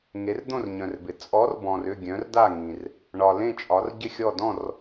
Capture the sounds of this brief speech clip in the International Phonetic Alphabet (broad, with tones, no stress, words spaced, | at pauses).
ŋe˨˥rd̪õ˥˨rɲœ̃˨rbɪ˨ t͡sʼɔ˨˥r bɔ̃˨rʏ˥˨ ɡʲœ̃˨˥rda˥˨ŋĩ˨r | ɳɒ˨ lẽ˥˨t͡ʃʼɒ˨˥r ɟɪ˥˨xʲɔ˥˨ dɔ̃˥˨r